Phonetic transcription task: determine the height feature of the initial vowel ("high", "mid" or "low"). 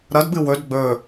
low